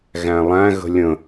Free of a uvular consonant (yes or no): yes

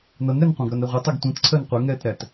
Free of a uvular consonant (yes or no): no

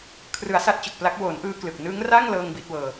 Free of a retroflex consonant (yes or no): yes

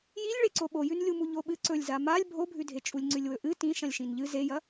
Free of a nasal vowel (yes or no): no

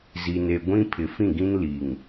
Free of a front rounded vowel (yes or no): yes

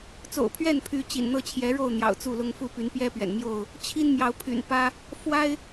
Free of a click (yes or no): yes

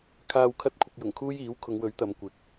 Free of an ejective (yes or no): yes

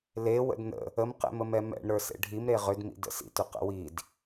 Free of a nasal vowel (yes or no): yes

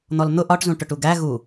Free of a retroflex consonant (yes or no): no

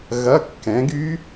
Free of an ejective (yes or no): yes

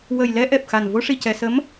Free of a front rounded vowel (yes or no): yes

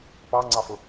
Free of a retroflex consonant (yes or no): yes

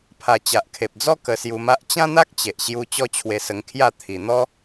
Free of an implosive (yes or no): yes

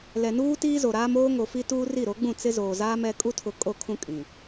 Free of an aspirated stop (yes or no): no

